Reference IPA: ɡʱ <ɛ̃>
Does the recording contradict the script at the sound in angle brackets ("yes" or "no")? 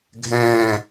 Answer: yes